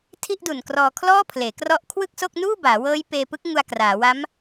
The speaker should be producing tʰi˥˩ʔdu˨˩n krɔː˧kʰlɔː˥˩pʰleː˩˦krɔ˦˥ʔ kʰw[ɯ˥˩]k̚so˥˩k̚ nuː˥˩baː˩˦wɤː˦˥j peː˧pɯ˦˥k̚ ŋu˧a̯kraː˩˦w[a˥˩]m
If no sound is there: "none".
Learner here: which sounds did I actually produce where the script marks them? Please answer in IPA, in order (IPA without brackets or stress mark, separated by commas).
ɯ˥˩, a˦˥